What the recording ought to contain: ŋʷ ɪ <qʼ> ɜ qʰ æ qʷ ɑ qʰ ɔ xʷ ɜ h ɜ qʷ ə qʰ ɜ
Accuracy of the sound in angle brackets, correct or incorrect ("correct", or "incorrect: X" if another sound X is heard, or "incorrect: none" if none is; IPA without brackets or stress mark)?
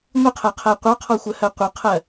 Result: incorrect: qʰ